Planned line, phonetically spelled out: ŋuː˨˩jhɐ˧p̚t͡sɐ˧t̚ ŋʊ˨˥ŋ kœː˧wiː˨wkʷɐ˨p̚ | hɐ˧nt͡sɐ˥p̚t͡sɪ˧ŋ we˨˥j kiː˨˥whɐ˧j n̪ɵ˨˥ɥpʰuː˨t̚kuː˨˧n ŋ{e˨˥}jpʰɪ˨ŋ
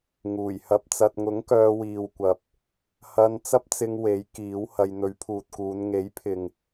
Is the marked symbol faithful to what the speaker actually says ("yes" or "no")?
yes